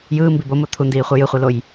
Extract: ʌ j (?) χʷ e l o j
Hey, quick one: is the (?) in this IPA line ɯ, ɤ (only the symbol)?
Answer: ɯ